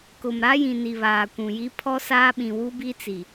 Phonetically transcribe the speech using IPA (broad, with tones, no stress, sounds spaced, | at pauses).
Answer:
k ʊ˨ m ɾ a˦ j ĩ˨ n i˨ β aː˨ kʷ ũ˨ j i˦ pʰ ɔ˦ s aː˦ ɓ ĩ˨ w u˦ b i˦ t͡s i˨